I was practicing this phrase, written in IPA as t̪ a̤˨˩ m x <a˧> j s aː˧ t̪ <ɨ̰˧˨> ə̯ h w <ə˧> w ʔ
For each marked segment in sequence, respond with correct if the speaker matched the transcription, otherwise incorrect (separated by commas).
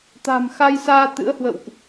correct, incorrect, incorrect